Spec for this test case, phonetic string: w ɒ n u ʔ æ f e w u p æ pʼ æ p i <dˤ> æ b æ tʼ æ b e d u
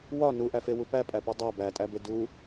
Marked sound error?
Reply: no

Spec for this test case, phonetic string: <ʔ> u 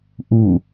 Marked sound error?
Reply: no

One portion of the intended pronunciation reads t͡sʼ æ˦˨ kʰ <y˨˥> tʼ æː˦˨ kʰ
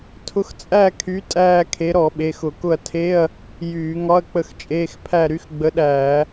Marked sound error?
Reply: no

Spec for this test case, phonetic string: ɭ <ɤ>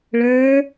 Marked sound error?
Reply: yes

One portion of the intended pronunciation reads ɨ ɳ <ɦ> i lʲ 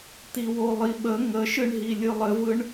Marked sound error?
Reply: no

